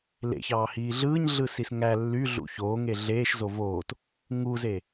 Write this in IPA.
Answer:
l ḛ ç ɑː h iː ɮ ɯː ɲ ɮ ɯ s i s ŋ æ lː y ɮ ṵ ç oː ŋ e ɮ eː ʃ z o v oː t | ŋ u z e

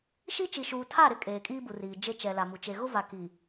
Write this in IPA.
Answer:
ʃ i˦ t͡ʃ i˨ ʃ uː˨ tʰ a˦˨ ɾ ɪ˦ kʼ eː˨ kʼ iː˦ b u˨ r iː˨ d͡ʒ e˦ t͡ʃ ɛ˨ l a˨ m u˨ t͡ʃ e˨ ɣ ʊ˦ v a˨ k i˨

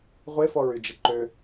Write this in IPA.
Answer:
ʁʷ e f ɔ ɹ y d͡ʒ ɪ ǃ ø

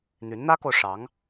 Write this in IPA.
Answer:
n̪ y˧˥ n n̪ ä˥ k o˨ ʊ̯ ʂ ɑ˧˥ ŋ

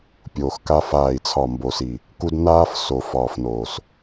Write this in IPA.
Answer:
pʲ oː˨ x k a˦ f aː˦˨ i̯ t͡sʰ ɒ˦˨ m b o˨ s i˨ | k u˦ d n aː˦ f s o˨ f ɒː˨ f n oː˨ s

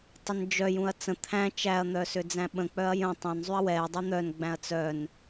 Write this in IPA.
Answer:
tˤ ə n d͡ʒ œ j ũ ɐ̯ t͡s ə̃ t̪ʰ æ̃ t͡ʃ æ ɐ̯ n̪ œ s ʏ d͡z æ̃ ɓ ə̃ k͡p œ ɐ̯ j ə̃ tˤ œ̃ n zˤ y ɐ̯ w ɛ dˤ y n̪ œ n ɡ͡b æ̃ ɐ̯ t͡s œ n

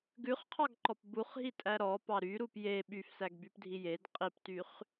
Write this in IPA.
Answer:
ɡ ʉ χ qʰ ɑ ɡ ǃ ɔ p b u χ ɦ i tʼ æ ɾ ɔ p ɑ ɾ y ɾ u p j e ɓ y f s æ ɡ b y p dʱ i j e d qʼ i p t y χ

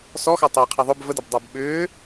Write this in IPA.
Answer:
s ɔ x ɑ tˤ ɛː qʰ æ ðˤ ʊ b v ə d ə b dˤ æ b ɓ ʏː

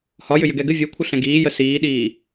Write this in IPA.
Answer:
h ɒ j ʏ j ʏ ɡ ɛ ɡ ɘ vʲ o kʷʰ ɘ ɬ ɛ̃ ɡ iː j ə s iː ɗ iː

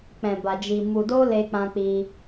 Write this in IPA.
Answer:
k͡p ɛ̃˧ b a˧ d͡ʒ i˧ m u˧ d o˦ l e˦ k͡p ã˦ k͡p i˦

